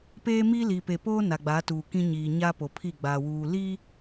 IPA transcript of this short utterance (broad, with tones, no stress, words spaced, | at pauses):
peː˦mi˦ liː˨pe˨poː˦ na˨ɡ͡baː˨˦tuː˨kĩ˦ ɲiː˨ɲa˦ po˨pʰi˦˨ɡ͡baː˨ wuː˨ liː˦